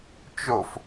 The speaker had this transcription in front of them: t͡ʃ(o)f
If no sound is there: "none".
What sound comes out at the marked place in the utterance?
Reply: o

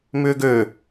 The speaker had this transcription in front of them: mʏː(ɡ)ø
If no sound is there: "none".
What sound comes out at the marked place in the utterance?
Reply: ɡ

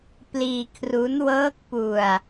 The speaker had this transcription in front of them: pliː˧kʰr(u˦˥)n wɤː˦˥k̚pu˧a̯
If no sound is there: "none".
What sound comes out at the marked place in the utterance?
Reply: u˦˥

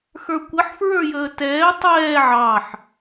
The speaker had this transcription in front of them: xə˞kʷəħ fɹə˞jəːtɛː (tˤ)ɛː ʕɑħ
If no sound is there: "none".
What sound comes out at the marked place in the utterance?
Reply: tˤ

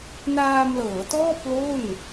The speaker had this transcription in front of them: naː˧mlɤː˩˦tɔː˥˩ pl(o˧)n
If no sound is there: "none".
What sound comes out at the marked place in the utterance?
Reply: o˥˩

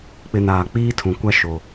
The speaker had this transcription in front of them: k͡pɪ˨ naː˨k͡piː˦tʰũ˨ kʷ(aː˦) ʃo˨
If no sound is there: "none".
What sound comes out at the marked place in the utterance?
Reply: a˦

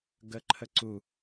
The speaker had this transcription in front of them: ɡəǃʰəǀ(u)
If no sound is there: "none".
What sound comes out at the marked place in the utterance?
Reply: u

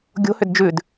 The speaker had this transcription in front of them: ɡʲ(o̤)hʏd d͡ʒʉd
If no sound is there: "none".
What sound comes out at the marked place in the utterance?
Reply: o̤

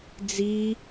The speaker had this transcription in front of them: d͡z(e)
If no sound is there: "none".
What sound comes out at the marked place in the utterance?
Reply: i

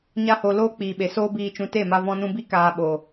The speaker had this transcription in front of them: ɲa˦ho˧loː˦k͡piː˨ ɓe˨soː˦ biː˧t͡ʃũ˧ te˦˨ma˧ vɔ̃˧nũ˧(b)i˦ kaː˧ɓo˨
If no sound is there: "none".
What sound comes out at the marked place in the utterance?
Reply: b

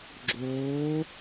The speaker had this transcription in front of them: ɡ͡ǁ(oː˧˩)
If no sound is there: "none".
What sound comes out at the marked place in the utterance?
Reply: oː˩˧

